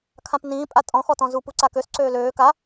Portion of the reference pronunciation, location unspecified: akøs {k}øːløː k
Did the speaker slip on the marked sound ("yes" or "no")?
yes